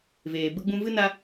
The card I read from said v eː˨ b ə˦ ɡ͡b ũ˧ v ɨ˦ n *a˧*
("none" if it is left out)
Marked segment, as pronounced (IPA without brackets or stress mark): a˧